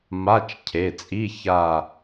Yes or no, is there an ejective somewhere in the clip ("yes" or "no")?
yes